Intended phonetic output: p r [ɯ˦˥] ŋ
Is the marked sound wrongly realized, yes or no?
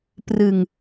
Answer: yes